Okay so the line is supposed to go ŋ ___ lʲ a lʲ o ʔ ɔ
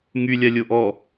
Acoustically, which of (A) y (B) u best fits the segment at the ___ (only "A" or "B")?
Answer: A